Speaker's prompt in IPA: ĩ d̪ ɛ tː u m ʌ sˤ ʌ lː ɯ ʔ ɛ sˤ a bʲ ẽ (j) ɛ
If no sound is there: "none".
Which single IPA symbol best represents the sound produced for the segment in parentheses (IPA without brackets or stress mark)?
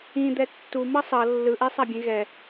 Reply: ɣ